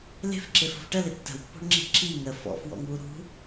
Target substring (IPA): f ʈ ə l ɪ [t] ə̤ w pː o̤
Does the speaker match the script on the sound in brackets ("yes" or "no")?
no